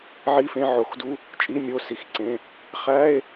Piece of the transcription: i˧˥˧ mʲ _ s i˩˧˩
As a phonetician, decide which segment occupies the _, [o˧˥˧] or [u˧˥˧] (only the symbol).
o˧˥˧